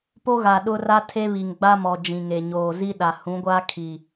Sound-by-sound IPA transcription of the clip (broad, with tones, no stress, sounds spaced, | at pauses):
p o˦ ɣ a˨ ɗ ʊ˦ r a˦ tʰ e˦ β i˨ ŋ ɡ͡b a˦ m ɔ˨ d͡ʒ ĩ˨ ŋ e˨ ɲ oː˨ z i˦ ɗ a˨ h ũ˨˦ ɡʷ aː˦ kʰ i˨